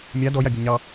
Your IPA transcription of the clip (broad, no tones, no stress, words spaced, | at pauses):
mʲa dɔjabʲɔ ɲɑ